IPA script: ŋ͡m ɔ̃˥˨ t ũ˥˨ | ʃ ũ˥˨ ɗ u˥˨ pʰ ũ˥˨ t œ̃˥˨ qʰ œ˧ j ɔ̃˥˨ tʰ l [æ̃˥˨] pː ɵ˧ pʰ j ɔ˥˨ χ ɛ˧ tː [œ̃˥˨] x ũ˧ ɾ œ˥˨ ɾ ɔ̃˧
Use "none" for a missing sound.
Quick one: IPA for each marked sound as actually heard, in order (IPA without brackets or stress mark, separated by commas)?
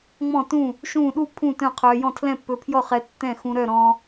ɛ̃˥˨, ɛ̃˥˨